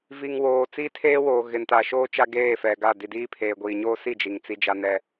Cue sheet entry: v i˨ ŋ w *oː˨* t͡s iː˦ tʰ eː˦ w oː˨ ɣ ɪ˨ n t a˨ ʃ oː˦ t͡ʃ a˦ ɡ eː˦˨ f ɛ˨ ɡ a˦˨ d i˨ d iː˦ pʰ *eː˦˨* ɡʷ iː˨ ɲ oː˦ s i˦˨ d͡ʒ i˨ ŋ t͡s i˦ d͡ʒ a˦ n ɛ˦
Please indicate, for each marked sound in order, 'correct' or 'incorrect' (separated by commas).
correct, incorrect